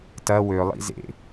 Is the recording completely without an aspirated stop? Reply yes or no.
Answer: yes